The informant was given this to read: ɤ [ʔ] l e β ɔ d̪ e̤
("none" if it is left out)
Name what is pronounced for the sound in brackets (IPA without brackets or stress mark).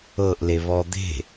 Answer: ʔ